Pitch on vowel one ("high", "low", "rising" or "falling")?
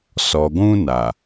low